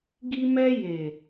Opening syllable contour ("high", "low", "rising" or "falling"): high